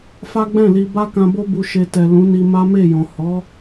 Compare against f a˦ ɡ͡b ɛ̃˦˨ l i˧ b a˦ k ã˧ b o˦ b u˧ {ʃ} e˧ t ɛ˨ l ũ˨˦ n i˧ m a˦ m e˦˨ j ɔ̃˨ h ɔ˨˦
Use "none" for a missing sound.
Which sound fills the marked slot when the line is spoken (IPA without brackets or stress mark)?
ʃ